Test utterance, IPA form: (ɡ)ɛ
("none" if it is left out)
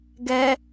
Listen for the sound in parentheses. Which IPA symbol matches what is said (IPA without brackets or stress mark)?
ɡ